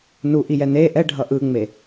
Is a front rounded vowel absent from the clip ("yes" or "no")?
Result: yes